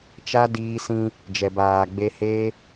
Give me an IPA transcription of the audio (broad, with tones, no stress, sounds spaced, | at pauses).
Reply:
t͡ʃ a˦ d iː˧ s ĩ˧ | d͡ʒ ɛ˨ b aː˨ ɡ͡b e˧ h eː˦